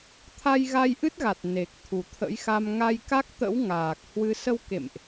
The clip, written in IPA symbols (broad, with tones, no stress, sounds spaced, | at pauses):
t̪ʰ a˧ j ɣ a˧ j ʔ ɨ˦˥ t̚ ɣ a˨˩ t̚ n e˨˩ k̚ t̪ʰ u˨˩ t̪ʰ ə̰˧˥ j x a˧ m ŋ a˧ j k a˦˥ k̚ t̪ ə̰˧˥ w ŋ aː˨˩ k̚ h w ɨ˧ s ə˧ w k ḛ˧˨ m ʔ